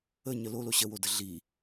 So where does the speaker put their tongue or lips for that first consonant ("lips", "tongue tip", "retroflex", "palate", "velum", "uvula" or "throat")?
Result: palate